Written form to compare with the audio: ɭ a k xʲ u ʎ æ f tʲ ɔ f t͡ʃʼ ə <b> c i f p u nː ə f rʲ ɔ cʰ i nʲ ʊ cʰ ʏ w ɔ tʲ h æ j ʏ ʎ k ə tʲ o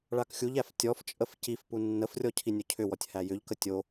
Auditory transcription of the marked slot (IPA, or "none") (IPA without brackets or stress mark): f